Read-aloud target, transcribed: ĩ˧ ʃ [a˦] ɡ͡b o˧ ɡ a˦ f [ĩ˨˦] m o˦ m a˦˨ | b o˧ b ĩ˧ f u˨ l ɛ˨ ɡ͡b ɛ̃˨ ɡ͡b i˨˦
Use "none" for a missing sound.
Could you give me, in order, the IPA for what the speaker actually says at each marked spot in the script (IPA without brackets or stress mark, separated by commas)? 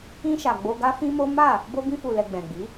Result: a˨, ĩ˦